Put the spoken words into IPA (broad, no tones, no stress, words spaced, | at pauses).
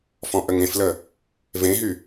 fɔ̃ʔəŋẽflə | vẽɦy